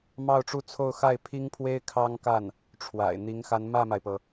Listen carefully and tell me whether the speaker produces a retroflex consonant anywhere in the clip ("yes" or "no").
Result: yes